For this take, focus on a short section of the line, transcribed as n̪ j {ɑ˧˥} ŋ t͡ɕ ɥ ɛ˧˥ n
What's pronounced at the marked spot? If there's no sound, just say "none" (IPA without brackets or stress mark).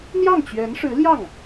ɑ˥˩